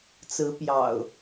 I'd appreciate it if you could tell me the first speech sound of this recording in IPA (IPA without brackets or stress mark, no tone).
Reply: t͡s